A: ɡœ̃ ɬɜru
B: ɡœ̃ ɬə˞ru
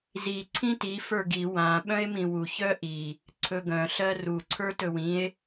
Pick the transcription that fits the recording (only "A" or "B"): A